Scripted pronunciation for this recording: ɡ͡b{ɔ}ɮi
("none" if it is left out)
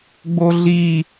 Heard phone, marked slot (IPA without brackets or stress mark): o